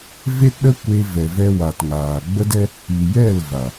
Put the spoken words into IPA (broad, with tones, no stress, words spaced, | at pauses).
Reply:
ve˦tɗə˦kʷe˧ vɛ˨vɛ˧wa˨tŋaː˨ ɡ͡bə˦dɛ˦ | i˨jɛ˦˨l va˨